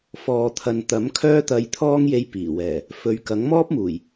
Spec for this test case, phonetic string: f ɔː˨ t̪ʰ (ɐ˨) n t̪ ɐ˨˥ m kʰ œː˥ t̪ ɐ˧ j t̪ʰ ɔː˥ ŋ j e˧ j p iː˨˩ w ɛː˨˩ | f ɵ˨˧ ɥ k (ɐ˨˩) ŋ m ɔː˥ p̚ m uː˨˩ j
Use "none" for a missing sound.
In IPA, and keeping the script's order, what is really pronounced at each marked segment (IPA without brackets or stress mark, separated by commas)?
ɐ˨, ɐ˨˥